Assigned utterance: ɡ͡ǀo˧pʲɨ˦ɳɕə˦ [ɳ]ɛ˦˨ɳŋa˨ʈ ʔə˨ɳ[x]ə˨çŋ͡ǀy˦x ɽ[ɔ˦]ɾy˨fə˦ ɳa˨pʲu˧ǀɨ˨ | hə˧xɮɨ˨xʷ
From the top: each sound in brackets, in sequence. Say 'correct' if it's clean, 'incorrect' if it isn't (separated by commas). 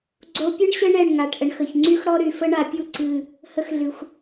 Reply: correct, correct, correct